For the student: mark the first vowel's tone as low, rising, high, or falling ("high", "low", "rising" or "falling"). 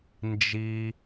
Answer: high